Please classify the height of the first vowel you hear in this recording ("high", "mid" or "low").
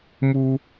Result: high